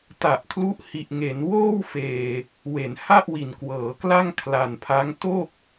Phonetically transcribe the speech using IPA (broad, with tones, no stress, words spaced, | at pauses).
ta˨˩ʔkʰlu˦˥ʔhi˨˩ʔ ŋe˩˦nwoː˥˩wfeː˨˩ | we˩˦nha˥˩ʔ wi˨˩nkwɤː˩˦kla˥˩ŋ kʰla˧npʰa˦˥ŋ to˥˩k̚